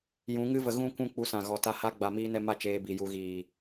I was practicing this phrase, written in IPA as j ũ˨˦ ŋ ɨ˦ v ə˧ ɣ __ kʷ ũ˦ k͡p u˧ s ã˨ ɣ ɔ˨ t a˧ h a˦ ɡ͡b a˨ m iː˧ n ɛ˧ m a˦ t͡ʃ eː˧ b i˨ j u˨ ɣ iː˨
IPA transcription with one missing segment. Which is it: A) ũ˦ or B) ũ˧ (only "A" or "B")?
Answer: A